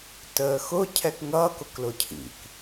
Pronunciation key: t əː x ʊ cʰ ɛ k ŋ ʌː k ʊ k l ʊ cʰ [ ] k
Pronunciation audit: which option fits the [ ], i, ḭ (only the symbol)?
ḭ